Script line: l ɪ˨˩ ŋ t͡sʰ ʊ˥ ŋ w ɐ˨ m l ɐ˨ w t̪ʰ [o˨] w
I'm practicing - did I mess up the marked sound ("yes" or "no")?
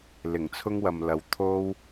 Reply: yes